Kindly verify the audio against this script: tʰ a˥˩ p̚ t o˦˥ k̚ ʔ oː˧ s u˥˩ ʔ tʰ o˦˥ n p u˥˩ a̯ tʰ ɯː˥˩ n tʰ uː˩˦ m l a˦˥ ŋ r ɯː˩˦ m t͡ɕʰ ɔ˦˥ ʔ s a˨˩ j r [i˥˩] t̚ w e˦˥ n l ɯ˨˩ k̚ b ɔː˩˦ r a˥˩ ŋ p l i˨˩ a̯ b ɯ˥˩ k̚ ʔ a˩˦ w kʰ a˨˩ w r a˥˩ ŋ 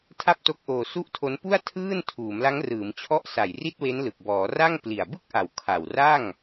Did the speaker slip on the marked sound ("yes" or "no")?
no